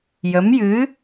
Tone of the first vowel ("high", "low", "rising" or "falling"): rising